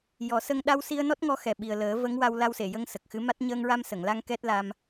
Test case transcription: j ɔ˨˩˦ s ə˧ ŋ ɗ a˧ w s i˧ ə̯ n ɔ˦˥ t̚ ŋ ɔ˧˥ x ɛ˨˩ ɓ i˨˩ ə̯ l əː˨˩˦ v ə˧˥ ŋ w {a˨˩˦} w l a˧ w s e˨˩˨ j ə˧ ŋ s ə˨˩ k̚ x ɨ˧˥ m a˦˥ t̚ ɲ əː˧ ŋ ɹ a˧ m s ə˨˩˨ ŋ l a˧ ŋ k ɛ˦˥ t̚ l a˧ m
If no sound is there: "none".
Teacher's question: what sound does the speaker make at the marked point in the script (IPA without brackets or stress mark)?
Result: a˧